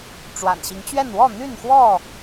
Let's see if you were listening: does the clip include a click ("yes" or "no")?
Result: no